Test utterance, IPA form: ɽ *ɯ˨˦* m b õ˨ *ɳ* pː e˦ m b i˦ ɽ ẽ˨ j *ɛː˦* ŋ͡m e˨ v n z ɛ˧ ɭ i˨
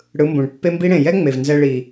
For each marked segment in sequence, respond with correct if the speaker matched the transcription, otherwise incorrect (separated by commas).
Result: correct, correct, incorrect